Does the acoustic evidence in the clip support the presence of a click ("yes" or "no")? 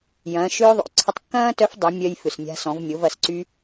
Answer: yes